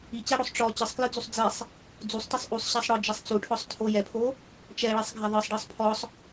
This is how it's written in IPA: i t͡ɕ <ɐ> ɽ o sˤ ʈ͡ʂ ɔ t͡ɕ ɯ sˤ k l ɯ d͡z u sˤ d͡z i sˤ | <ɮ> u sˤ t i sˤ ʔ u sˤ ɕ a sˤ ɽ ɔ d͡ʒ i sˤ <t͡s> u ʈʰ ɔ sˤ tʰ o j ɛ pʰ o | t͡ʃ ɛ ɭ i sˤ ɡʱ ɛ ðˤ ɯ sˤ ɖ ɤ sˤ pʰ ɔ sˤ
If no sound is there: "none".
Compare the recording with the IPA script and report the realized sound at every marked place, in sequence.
a, d͡z, t͡s

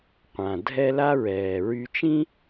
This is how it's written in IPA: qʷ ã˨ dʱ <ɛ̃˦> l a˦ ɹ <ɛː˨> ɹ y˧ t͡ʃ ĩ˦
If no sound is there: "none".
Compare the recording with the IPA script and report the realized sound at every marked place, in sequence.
ɛ˦, ɛː˨

